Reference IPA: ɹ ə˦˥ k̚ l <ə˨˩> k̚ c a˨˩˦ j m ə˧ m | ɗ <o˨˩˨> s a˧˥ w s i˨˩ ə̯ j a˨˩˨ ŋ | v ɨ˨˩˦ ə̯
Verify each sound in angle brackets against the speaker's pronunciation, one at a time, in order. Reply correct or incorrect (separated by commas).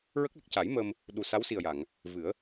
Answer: correct, incorrect